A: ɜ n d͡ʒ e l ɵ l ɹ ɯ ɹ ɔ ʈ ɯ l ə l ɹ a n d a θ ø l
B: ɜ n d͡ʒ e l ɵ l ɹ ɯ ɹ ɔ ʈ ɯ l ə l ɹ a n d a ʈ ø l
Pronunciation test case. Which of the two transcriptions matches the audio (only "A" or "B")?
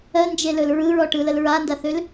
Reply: A